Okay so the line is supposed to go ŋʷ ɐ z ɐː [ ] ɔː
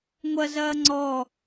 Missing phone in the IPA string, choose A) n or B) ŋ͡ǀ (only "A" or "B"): B